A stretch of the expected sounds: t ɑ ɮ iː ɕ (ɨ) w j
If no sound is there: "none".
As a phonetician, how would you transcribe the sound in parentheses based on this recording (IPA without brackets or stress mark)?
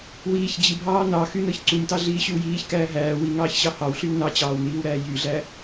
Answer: y